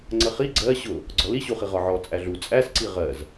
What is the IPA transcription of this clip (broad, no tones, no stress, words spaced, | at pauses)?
ŋ͡ǀəχi ɡ͡ǀɜ ɕʊ | ɡ͡ǀɔliɕuχi ʁɒʕɔ t͡sʼæɮu t͡sʼæsǀi ʁɜz